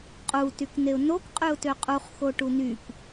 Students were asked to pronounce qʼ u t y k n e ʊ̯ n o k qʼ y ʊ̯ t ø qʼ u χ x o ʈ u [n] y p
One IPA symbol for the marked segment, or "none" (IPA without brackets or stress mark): n